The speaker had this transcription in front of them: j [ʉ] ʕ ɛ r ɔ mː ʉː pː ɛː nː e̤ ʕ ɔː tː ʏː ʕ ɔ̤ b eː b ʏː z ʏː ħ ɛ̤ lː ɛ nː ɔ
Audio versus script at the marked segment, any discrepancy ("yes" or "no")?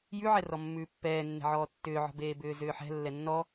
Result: no